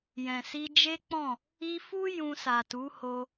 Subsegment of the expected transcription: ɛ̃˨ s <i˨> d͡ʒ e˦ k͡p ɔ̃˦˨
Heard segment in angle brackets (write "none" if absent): i˧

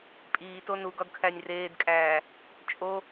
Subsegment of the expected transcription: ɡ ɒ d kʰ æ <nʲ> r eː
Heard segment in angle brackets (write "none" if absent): nʲ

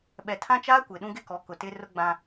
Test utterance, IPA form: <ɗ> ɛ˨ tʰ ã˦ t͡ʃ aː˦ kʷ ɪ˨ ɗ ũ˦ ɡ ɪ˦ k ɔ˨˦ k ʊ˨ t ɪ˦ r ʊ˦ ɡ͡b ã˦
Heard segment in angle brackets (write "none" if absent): ɓ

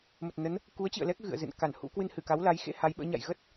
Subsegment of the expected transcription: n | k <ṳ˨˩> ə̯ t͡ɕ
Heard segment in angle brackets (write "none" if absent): u˨˦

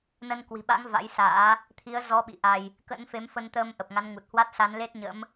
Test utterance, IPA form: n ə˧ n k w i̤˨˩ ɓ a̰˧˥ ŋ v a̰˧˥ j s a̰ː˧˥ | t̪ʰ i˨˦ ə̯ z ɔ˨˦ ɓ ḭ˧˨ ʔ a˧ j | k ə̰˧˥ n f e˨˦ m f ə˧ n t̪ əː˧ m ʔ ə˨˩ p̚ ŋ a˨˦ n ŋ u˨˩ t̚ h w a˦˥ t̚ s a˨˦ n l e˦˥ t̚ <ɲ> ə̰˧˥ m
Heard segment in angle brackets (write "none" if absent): ɲ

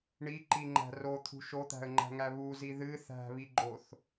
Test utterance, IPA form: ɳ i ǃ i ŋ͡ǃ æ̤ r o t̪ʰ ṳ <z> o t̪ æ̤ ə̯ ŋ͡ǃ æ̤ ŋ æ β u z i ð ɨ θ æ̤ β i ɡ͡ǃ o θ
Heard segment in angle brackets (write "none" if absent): ʃ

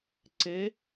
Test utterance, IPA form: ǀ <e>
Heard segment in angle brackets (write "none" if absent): e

